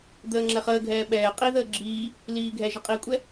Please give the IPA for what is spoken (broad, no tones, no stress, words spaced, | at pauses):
d̪əːŋ͡ǁɛχəːɡʱɛː ɓɛː qʼiðəː ɡ͡ǁiː | liːɡʱɛʒə qʼikʷʼɛ